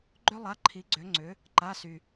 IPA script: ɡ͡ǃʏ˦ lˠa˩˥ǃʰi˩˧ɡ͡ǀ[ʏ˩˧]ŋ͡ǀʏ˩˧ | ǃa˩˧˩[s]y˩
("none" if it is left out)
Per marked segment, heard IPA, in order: ʏ˩˧, s

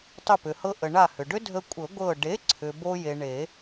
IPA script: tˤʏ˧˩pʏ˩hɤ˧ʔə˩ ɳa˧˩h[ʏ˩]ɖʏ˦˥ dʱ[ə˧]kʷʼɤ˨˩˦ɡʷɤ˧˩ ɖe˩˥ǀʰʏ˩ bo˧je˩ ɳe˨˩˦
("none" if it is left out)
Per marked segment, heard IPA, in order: ʏ˩, ə˧

